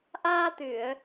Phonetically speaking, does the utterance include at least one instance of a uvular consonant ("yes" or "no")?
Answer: no